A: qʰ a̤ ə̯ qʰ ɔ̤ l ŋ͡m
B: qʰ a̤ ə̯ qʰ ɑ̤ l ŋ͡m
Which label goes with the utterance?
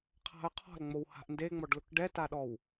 A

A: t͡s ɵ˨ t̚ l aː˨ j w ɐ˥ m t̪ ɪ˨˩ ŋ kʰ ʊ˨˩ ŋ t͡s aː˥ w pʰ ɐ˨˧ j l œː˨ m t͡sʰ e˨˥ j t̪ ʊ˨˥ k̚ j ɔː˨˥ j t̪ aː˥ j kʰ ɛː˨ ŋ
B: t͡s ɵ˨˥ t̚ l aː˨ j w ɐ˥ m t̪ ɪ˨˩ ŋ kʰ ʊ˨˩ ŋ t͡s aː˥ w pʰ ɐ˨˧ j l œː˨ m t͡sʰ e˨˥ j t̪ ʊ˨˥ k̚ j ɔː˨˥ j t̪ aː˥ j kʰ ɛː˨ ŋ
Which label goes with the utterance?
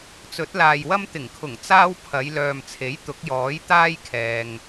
B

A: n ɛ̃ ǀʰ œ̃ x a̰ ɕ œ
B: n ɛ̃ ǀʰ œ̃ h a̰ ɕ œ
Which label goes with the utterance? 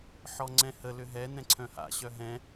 B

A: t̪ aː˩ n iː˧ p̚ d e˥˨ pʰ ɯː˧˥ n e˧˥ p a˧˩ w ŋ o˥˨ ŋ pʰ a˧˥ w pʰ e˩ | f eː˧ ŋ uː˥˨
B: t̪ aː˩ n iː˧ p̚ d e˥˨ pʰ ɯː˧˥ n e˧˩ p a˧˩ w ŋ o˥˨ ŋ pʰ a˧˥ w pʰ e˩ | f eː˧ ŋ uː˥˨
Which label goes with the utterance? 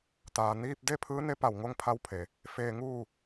A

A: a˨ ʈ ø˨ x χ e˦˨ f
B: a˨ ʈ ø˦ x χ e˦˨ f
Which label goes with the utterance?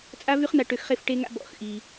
A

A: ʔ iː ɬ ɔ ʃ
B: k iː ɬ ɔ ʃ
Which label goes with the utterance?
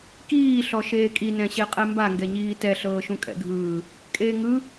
B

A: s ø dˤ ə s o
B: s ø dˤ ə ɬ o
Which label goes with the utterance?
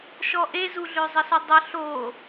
B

